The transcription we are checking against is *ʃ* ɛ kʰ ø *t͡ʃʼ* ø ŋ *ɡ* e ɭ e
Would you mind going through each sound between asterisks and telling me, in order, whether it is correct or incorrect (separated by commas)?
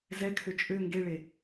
incorrect, correct, correct